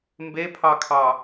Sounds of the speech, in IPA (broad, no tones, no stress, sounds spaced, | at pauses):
m b e pʰ ɑ kʰ ɑ